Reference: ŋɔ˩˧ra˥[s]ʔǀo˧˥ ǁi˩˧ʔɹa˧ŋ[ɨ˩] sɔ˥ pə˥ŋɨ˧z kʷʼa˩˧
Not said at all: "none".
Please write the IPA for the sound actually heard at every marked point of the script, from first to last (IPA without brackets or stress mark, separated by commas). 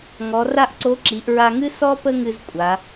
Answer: none, ɨ˥